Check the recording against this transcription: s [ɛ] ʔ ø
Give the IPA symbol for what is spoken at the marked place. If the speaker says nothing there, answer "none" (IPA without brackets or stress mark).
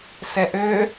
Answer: ɛ